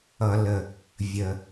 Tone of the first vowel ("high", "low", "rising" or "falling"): low